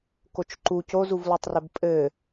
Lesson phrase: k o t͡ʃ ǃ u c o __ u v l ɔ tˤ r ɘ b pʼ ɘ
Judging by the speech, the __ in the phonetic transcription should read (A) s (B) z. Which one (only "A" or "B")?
B